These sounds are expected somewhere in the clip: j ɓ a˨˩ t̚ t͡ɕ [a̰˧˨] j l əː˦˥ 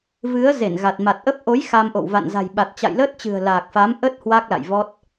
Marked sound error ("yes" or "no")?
no